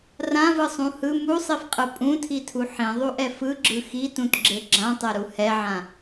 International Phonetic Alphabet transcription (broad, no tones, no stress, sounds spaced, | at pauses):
r ã v ɯ sˤ ũ h ɯ m u sˤ i f qʼ ɯ pʼ ũ tʰ i tʰ u ħ ĩ ðˤ u ʔ ɛ f ɯ ɡ͡ǁ ɯ x i t ũ t ɡ͡ǁ e ɡ͡ǁ ã tˤ ɛ ɾ u h ɛ ʕ ã